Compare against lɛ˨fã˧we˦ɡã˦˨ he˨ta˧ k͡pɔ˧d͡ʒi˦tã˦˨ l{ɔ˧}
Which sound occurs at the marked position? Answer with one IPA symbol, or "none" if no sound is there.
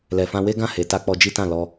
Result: ɔ˧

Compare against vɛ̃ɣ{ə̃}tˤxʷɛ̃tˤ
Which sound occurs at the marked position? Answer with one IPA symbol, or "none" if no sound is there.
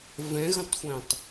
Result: ə̃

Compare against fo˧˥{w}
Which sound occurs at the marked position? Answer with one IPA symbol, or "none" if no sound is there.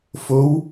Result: w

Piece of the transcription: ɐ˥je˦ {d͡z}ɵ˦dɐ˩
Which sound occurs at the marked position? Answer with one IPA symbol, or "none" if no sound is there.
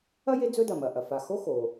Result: d͡z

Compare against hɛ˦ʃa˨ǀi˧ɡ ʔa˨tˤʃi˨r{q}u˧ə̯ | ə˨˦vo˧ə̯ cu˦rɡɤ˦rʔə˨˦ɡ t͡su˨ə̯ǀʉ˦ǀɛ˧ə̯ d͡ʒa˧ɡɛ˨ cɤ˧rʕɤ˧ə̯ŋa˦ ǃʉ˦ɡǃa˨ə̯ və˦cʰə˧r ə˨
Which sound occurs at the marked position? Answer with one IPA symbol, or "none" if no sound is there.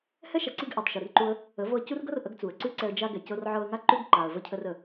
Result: ǃ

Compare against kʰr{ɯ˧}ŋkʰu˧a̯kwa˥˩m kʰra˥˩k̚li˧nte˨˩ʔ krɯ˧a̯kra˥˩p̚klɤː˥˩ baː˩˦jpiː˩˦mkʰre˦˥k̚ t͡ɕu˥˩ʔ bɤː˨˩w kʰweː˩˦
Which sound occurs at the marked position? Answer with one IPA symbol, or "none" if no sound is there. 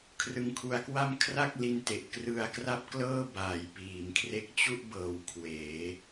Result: ɯ˧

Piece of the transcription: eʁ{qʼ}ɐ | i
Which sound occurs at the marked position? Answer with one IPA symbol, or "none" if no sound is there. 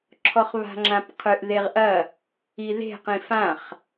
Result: ʔ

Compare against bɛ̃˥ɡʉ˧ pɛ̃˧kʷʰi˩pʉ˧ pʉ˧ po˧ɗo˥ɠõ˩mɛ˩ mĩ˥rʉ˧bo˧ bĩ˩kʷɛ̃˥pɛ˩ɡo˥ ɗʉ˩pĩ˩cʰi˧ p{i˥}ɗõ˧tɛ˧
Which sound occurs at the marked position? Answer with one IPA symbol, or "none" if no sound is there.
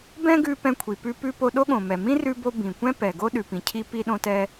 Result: i˧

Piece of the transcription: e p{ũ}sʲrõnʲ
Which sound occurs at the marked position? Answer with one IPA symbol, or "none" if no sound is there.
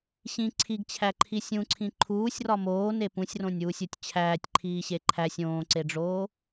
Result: ũ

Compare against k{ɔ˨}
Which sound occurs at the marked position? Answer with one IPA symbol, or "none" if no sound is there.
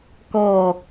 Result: ɔ˦˨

